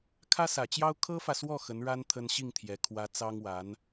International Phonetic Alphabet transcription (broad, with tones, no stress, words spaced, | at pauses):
kʰä˥sä˨˩t͡ɕjɑ˥ʊ̯ kʰɤ˥fä˨swɔ˥˩ xə˧˥nɻa˥n t̪ʰə˥n ɕi˥˩ŋt̪ʰjɛ˧˥ kʰwä˧˥ t͡sɑ˥ŋwa˧˥n